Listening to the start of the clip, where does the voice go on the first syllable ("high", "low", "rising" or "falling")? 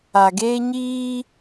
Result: low